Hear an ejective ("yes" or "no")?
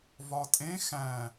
yes